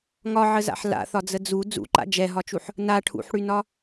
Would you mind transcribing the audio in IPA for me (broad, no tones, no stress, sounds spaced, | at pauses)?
ŋ ɒ ʕ ə z a̰ ħ l a̰ θ ɒ d͡z ə d͡z u d͡z ṵ ǃ a̰ d͡ʒ ɛ ɦ ɒ t͡ʃ u ħ | n a ʈʰ ṵ ħ ɽ y n ɒ